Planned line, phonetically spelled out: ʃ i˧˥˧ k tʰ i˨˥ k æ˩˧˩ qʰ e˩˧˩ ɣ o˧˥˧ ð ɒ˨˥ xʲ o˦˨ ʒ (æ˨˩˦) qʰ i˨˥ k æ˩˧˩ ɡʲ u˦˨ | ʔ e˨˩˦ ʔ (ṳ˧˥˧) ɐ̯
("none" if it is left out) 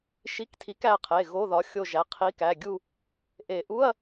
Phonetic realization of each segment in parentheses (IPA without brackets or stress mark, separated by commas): æ˩˧˩, u˧˥˧